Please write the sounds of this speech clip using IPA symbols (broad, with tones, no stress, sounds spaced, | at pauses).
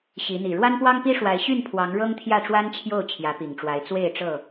ɕ i˨˦ n̪ i˨˩ ɻ w a˦ n p w ɑ˦ ŋ p i˦ ʂ w a˨˦ ɪ̯ ɕ y˥˨ n pʰ w ɑ˨˦ ŋ ɻ ɤ˦ ŋ t̪ʰ j ä˥˨ ʈ͡ʂ w a˦ n t͡ɕʰ j o˥˨ ʊ̯ t͡ɕʰ j ä˨˦ p i˨˩ ŋ ʈ͡ʂ w a˨˦ ɪ̯ t͡s w e˥˨ ɪ̯ ʈ͡ʂ ɤ˥˨